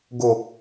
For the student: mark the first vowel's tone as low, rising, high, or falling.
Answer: low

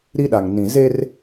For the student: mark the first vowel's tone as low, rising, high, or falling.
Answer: high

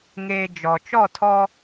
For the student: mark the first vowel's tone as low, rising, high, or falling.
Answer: low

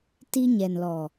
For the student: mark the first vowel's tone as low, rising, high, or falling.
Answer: high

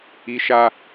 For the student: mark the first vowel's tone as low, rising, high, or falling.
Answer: high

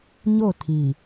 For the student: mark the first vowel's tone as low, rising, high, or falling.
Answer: falling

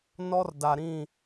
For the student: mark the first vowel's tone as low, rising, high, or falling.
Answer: high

